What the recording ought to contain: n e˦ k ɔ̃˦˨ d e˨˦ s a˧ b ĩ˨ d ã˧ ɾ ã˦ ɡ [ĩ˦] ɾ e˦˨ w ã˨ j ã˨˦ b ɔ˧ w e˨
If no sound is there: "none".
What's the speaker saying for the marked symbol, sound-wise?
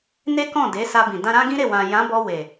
ĩ˦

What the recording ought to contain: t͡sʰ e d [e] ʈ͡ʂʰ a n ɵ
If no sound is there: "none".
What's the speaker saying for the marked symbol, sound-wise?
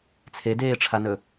eː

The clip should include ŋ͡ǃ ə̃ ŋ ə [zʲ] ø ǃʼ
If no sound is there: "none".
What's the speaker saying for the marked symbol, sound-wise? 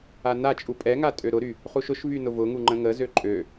z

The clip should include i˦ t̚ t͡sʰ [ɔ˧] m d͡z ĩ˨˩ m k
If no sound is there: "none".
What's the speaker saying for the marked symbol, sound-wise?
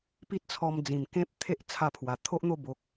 ɔ˧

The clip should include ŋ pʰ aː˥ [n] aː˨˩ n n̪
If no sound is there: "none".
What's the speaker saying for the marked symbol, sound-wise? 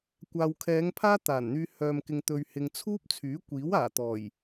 t̪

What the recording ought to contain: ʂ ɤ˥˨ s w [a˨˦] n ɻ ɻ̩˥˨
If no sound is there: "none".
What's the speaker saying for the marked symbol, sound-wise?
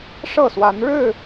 a˨˦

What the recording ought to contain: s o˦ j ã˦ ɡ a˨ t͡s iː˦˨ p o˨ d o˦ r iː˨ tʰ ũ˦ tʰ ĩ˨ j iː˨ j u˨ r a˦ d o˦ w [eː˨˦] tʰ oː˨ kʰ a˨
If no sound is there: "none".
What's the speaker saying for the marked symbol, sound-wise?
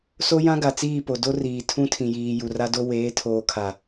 eː˨˦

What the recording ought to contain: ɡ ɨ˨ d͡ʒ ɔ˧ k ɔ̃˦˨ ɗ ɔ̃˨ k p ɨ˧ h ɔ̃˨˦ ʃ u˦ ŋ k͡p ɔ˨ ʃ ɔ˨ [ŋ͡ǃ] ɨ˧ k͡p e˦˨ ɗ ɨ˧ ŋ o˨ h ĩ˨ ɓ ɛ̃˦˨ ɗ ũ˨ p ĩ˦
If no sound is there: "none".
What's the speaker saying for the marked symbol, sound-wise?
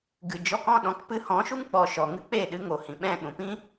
ŋ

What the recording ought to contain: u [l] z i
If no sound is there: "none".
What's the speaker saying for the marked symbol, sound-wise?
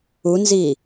n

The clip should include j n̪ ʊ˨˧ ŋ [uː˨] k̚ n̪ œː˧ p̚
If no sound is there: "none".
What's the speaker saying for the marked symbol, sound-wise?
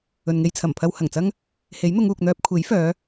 uː˨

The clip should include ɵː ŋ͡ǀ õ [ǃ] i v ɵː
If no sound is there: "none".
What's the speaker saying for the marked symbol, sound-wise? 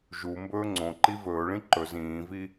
ǃ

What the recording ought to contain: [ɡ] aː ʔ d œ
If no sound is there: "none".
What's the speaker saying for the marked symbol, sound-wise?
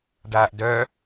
ɖ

